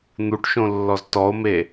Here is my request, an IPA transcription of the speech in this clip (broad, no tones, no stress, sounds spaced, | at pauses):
n̪ u ʈ ʃ õ lː ɔ z t ɔ o̯ m e